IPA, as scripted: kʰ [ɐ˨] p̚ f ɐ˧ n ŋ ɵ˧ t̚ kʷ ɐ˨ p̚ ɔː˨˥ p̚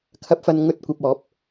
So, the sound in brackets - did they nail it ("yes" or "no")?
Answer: no